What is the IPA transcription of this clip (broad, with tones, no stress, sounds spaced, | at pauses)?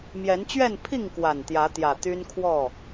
m j ɛ˨˦ n t͡ɕ ɥ ɛ˥˨ n pʰ i˥˨ ŋ k w a˨˩ n t̪ j ä˨˦ t̪ j ä˨˩ t̪ y˦ n kʰ w ɔ˥˨